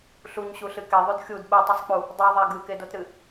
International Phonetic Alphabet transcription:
ɬ u ɲ ɕ u ɬ ɨ k e ðˤ u d xʲ u d ɓ ɯ tˤ ɯ sˤ k͡p u | dˤ u ðˤ a ɡ ɯ k e d o t ɾ ɨ

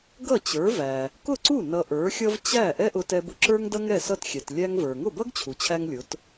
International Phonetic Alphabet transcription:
ɡ ʌ˥˩ t͡ɕ ə˞˩˥ v æ˩ | k ʊ˥˩ ǀ u˥˩ n ʌ˧ ʔ ə˞˩˥ xʲ ʌ˥ v t͡ɕ æ˥˩ ʔ ɛ˥ ʔ ʊ˧ t ɛ˧ b ʊ˧ ǁ ə˞˥ ŋ d ʌ˥ ŋ ɛ˥˩ s ʌ˥˩ t xʲ ɛ˩ t lʲ æ˥ ŋ v ə˞˩ ŋ ʊ˥˩ b ʌ˥ ɡ t͡ɕʰ u˩ t͡ɕʰ æ˧ ŋ lʲ ʊ˩˥ t

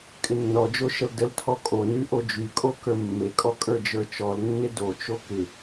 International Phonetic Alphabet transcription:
kʼ ɪ nː ɔ d͡ʒ o ʃ ə l d ə l tʰ ɔ kʼ o n y ʔ o d͡ʒ y kʼ o k ə˞ mː e kʼ ɔ kʼ ə˞ d͡ʒ ə˞ t͡ʃ ɔ l nː ɪ d o t͡ʃ o k ɪ

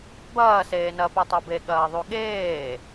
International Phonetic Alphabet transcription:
b ɐː s eː n ɐ p ɛ tˤ o b e ɠ ɐː ðˤ u ɠ eː

